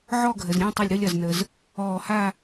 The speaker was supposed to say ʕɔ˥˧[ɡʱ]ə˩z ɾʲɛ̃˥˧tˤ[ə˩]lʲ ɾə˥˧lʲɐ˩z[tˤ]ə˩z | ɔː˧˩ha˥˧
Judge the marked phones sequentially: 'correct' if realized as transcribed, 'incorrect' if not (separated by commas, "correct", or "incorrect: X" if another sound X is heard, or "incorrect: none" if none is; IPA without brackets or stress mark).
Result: correct, incorrect: ə˧˩, incorrect: n